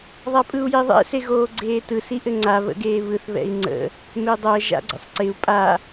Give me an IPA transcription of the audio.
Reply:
ðˤ a pʼ ɯ u̯ j e ðˤ ɛ̰ s e ɣ oː ɡ͡ǀ eː t ɯ s i ʔ ɘ ŋ͡ǀ a β ə̰ ɡ eː β ɯ θ β ɛ̰ i̯ ŋ͡ǀ ə̰ | m e dˤ ɜ ʒ a̰ ɡ͡ǀ ə̰ sˤ ǀ ɪ u̯ pʼ a

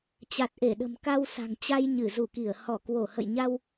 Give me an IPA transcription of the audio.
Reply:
t͡ɕ a˨˩ t̚ ʔ e˧˩ ɗ ə̤˨˩ m k a˧ w s a̤˨˩ ŋ t͡ɕ a˧ j ɲ ɨ˧˩ z u˧˩ k i˧˩ ə̯ h ɔ˧˩ k w o˧˩ h ə̰˧˨ j ɲ a˧ w

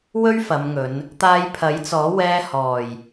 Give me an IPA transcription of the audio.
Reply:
w ɵ˥ ɥ f ɐ˨˧ m ŋ ɵ˨˧ n | t̪ aː˧ j pʰ ɐ˨˥ j t͡s ɔː˨˥ w ɛː˧ h ɔː˨˩ j

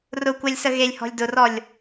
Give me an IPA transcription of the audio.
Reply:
r ʊ kʷ ɛ lʲ s ə ɣ e lʲ h ɔ̤ lʲ d ʊ r ɔ lʲ

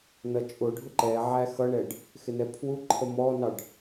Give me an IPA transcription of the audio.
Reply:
n ʌ t͡ʃʼ ʊ ɖʱ ʊ ǃ ɛ ʕ æ x ʌ ɳ ɛ ɖ | x ɪ n ɛ pʰ w u ǃʰ ə m ɔ n ɑ ɖ

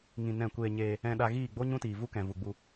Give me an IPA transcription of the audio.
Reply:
ŋ ĩ˧ n ɛ̃˦˨ kʷ eː˧ ɲ eː˧ | ɛ̃˧ ɗ a˧ ɣ iː˦˨ ɡ͡b o˦ ɲ ũ˦ t iː˨ v u˦ k ɛ̃˨ v u˨ ɡ͡b u˧

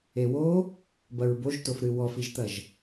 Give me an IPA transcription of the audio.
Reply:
e w o | b ɐ ɹ b o ʒ t o f ɾ ɨ w ɔ f i ʒ t̪ ɐ ʒ

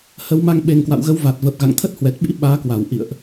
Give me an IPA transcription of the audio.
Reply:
h ə˨˦ w m a˧ ŋ ɓ e˨˩ ŋ k w a̰˧˨ w ɣ ə˨˦ w v a˨˩ t̚ v ə˨˩ p̚ ɣ a̰˧˨ ŋ t̪ʰ ə˦˥ t̚ h w ɛ˨˩ t̚ ɓ ḭ˧˥ ɓ aː˨˦ k w a˧˩ w ʔ ḭ˧˨ ə̯ ʔ

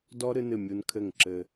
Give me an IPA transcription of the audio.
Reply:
d ɔ˦ ɾ ɨ˦ n ɨ˦˨ mʲ u˧ n kʰ ɘ˦˨ ŋ ǁ ɘ˧

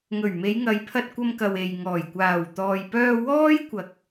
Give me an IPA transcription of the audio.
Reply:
ŋ ɵ˨˩ ɥ m e˨˧ j ŋ ɐ˨˧ j pʰ ɐ˧ t̚ kʷ ɐ˧ m k ɐ˨ w e˨ j ŋ ɔː˨˩ j kʷ aː˨˩ w t̪ ɔː˨ j p œː˧ w ɔː˥ j kʷ ɐ˨ k̚

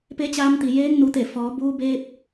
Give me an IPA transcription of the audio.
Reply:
p e˧˥ t͡ɕ aː˧ m t̪ i˩ j eː˧˥ ŋ n u˩˧ t̪ e˧˩ f ɔː˩˧ b uː˧ b eː˧ p̚

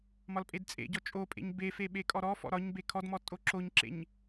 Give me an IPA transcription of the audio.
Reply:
m ɒ l pʼ e d t͡sʼ ḛ ɟ ɔ t͡ʃʼ o pʼ ḛ ɲ b e f e ɓ e kʼ ɔ ɾ ɔ f ɔ̰ ɾ ɒ ɲ b e kʰ ɔ d m ɔ tʼ o ǁ o ɲ ǁ ḛ ɲ

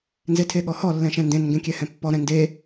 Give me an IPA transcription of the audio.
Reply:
n z e tʰ e ɠ ɔ h ɔ lː ɛ̃ ʃ ɛ̃ n d ẽ n ŋ ɡ ẽ kʲ ɛ h ɛ̃ pː ɔ ɾ ɛ̃ n d e

